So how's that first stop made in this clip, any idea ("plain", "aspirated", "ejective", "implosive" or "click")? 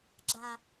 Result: click